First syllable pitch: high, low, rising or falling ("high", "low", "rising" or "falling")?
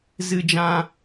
high